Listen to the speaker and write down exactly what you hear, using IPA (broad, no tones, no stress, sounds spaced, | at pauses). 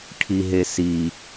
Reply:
ʈʰ i ɦ e s i